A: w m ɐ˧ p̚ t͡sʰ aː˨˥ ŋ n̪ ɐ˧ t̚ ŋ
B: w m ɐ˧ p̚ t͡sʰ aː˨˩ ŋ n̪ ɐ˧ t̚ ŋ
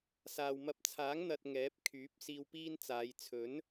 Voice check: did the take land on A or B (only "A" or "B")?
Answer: A